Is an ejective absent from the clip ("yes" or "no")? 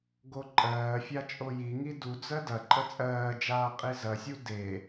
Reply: no